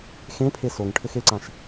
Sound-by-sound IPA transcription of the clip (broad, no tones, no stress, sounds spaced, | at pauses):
x ẽ pʰ e s o ŋ ʈʰ ɘ x e ǀ ã ʃ